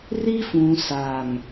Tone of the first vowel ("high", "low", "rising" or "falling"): high